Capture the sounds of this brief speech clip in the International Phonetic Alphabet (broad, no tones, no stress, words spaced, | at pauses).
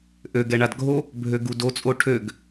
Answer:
ʔøɡɛɳad ɡʱo | bʱøɡudot͡sʼo ʈʰøɡ